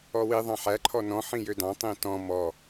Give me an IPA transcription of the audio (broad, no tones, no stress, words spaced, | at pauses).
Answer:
ɔwi ðˤɑ̃ħæ ǃʰɔnɔ̃ ħĩjødɑ̃ tˤĩtɔ̃ mɔ